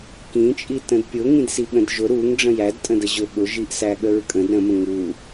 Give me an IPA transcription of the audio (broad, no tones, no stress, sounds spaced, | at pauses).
k ĩ t͡ʃʼ i t ə̃ d pʲ ʊ ŋ ĩ d s i ɠ ə̃ d ʒ ʊ ɾ u ŋ ɖ͡ʐ ə̃ j æ d tʼ ə̃ d ə ʑ ʊ ɠ ʊ ʒ i ʔ s æ ɠ ə ɹ kʼ ə̃ d ɾ ə̃ m ə̃ ŋ u